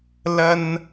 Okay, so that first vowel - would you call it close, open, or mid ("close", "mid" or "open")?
open